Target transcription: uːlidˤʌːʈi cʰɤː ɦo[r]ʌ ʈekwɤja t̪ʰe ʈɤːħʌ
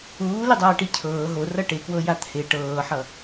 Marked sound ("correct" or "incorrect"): correct